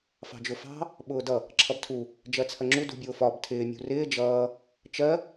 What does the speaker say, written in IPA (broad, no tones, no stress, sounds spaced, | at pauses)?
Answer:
f ɑ̤ d͡ʒ ʊ f ɑ̤ | ɓ ʊː d ʌ | ǁʰ ʌ b tʰ u | d͡ʒ ɜ t͡sʰ ɜ ŋ͡ǁ u d ṳ bʲ ʊː f ɒ b tʰ ɪː mʲ ṳ r ɪː d͡ʒ ʌː | t͡ʃ ɜ